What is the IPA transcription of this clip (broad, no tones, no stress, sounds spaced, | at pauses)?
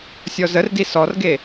sʲ ɔ z ə r d i s ɔ r ɡ e